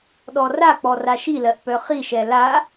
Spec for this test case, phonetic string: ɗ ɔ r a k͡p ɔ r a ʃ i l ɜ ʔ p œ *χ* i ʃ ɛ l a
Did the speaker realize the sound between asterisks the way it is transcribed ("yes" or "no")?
yes